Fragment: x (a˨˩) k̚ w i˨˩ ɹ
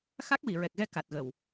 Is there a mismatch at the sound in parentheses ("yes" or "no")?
yes